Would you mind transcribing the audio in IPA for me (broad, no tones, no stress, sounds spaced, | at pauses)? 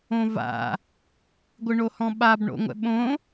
õ v a̰ | ɡʷ ɯ ɳ o h ɔ̃ ɓ a b ɳ o̰ ŋʷ ɛ̰ ɓ õ